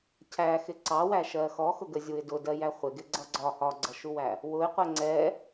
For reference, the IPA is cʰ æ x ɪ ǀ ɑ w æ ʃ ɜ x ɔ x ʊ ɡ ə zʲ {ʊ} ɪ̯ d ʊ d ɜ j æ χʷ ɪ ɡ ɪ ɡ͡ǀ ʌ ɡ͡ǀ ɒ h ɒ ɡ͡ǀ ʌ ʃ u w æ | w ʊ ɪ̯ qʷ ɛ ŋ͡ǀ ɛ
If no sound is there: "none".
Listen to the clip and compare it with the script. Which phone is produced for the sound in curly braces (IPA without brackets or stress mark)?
u